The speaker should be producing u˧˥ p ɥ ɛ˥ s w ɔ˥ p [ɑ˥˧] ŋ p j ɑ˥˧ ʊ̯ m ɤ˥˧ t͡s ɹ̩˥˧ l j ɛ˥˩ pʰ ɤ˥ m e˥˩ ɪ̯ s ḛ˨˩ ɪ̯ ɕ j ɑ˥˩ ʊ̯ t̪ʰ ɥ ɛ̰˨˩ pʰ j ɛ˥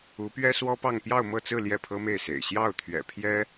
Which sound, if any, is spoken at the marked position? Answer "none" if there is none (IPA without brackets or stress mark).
ɑ˥˧